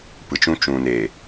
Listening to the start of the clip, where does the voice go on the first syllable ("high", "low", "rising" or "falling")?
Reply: low